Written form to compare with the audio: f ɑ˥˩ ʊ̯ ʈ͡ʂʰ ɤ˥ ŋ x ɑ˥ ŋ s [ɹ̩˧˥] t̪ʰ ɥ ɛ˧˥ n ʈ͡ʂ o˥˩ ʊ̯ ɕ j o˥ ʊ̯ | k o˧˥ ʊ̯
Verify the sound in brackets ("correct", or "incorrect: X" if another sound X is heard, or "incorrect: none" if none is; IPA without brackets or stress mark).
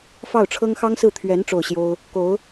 incorrect: ɹ̩˥˩